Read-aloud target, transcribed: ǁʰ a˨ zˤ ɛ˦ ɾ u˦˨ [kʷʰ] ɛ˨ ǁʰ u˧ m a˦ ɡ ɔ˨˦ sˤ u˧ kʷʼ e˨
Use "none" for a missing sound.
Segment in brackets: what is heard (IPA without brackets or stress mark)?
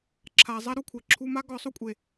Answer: kʷʰ